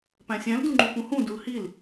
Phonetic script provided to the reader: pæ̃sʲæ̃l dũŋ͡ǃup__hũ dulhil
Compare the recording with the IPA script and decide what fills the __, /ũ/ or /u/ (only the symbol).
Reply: ũ